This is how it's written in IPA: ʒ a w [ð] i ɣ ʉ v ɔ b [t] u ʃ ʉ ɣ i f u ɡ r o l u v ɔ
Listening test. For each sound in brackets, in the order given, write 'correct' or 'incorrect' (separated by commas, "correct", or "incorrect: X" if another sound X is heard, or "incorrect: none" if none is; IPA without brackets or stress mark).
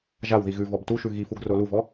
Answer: correct, correct